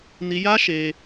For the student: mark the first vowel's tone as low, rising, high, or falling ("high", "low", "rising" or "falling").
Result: high